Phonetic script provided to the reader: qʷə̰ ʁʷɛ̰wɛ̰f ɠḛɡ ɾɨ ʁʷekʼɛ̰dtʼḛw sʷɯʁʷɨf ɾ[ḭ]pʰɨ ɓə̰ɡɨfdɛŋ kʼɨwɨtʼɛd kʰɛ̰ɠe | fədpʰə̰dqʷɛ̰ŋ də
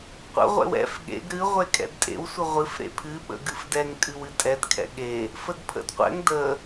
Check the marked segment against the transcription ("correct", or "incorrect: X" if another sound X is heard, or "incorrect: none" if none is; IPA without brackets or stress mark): incorrect: ḛ